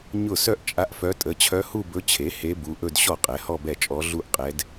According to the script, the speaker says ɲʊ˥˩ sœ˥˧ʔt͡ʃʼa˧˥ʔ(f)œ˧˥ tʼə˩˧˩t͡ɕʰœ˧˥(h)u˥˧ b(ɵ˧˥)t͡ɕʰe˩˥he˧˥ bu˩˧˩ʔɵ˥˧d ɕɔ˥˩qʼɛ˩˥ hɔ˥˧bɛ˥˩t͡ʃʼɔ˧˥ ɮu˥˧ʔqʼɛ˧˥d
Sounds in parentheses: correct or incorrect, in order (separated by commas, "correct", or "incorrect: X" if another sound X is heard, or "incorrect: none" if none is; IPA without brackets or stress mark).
correct, correct, correct